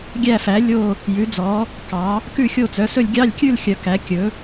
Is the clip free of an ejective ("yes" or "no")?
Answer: yes